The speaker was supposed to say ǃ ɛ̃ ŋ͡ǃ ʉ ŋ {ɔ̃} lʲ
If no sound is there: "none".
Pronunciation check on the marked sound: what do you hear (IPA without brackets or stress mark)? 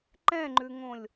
õ